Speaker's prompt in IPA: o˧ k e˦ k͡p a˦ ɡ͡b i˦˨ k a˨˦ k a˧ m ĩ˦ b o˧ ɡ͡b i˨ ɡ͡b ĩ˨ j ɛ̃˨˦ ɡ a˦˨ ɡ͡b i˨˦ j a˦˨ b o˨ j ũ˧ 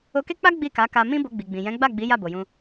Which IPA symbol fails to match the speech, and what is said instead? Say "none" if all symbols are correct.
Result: ɡ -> ɡ͡b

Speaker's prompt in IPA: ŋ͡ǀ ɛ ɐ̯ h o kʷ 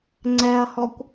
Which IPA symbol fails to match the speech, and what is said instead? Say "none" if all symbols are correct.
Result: o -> ɔ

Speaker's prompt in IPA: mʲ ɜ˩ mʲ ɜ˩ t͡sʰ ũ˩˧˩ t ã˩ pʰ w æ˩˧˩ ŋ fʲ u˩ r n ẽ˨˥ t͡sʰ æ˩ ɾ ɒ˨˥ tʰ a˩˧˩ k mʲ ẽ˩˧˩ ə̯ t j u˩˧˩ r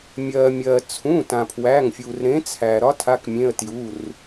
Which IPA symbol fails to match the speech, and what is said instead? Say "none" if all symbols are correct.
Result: n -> ɾ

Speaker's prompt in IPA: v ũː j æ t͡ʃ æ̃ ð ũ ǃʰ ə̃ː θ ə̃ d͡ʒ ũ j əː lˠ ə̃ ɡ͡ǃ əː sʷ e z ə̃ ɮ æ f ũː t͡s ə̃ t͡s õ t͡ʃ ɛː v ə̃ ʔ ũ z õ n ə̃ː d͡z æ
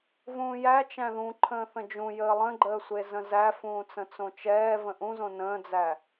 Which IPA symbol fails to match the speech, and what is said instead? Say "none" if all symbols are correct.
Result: ɮ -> z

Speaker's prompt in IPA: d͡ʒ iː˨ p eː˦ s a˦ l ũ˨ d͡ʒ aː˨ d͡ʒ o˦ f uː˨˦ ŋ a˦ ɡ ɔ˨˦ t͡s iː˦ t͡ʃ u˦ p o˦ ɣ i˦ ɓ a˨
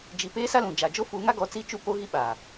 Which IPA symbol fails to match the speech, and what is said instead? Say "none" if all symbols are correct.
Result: none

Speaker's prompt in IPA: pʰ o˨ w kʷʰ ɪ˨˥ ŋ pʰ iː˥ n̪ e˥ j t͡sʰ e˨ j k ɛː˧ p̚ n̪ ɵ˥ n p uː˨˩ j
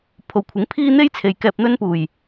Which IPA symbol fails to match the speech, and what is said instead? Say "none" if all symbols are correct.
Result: none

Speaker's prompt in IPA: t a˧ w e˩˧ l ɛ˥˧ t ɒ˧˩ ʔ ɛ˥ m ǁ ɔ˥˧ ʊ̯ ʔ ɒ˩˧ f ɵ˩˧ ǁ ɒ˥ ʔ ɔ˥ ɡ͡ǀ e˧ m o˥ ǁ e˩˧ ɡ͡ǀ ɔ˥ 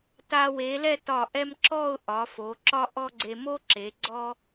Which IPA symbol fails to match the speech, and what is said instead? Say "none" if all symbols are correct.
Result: ɵ˩˧ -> o˩˧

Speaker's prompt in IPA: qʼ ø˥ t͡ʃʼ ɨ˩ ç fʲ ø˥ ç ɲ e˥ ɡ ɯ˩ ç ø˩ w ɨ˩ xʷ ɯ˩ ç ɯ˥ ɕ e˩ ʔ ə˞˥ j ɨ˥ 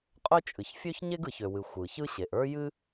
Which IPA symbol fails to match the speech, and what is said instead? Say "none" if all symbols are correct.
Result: none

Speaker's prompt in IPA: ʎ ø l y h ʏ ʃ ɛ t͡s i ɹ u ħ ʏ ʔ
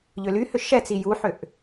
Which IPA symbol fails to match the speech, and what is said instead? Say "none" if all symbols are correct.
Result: ɹ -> j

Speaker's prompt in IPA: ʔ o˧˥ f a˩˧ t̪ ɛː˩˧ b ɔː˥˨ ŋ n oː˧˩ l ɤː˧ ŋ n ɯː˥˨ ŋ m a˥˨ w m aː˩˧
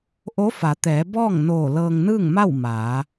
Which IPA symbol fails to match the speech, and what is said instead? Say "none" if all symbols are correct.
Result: none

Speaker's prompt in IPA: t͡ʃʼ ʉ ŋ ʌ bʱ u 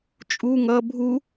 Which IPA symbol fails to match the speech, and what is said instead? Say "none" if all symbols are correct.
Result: ʉ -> u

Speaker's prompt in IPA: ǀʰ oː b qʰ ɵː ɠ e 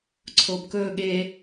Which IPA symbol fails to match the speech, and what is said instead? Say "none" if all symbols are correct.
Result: qʰ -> k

